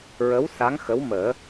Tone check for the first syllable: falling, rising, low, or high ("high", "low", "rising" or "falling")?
rising